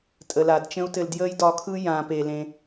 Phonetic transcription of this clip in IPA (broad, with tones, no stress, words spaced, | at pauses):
tʼə˨la˨dt͡ʃə̃˦u̯tɘ˧l djəː˦jdɒ˧kʰɯ˦ jãː˨pe˨ lẽ˧